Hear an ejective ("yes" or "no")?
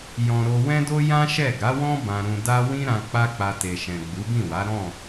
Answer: no